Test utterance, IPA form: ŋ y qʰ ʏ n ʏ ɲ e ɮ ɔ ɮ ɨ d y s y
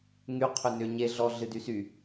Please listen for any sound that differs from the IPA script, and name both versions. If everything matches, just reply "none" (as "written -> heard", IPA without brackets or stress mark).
none